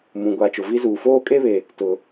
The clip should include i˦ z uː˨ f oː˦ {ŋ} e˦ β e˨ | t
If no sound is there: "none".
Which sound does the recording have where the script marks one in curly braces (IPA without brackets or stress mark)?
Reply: kʼ